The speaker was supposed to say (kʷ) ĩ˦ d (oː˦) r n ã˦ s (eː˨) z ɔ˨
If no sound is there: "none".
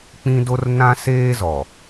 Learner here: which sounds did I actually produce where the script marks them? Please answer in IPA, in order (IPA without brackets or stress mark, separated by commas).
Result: k͡p, o˦, eː˦